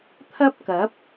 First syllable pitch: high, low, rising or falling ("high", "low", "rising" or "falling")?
high